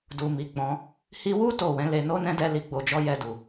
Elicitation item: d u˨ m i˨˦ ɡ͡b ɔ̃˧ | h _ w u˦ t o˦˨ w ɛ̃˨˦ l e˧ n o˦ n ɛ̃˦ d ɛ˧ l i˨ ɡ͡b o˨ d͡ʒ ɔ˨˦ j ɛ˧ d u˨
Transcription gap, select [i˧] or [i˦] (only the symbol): i˧